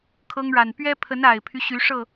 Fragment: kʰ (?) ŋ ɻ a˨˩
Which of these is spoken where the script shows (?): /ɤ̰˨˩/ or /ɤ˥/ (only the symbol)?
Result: ɤ˥